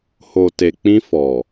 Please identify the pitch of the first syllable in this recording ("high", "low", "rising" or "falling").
low